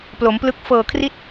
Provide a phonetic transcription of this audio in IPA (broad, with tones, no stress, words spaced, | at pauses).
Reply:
plo˩˦mplɯ˦˥k̚ fɤː˨˩kʰri˦˥t̚